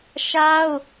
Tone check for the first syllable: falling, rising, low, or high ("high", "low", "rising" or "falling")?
high